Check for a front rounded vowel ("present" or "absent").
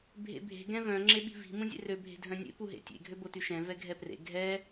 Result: present